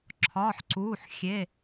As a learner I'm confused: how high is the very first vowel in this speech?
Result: low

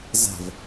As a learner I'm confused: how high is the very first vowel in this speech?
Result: low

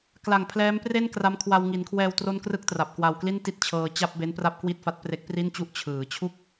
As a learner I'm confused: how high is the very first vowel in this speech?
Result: low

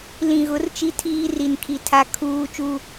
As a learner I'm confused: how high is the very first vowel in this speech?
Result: high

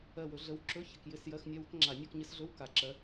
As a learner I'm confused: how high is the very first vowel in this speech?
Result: mid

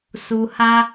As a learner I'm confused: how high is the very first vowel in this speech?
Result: high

